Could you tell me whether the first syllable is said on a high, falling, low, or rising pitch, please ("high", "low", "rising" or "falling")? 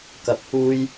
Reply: rising